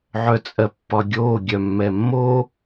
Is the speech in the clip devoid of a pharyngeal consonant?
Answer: no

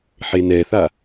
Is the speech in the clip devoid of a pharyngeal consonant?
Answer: no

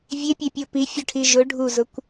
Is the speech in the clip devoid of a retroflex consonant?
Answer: no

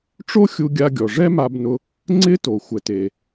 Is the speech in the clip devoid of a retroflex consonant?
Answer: no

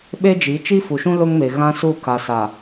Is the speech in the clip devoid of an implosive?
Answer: no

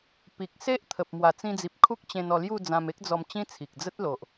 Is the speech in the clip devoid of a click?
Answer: yes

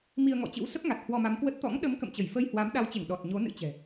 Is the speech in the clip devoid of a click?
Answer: yes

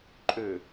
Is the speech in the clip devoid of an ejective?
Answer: no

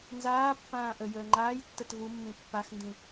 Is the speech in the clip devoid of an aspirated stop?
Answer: yes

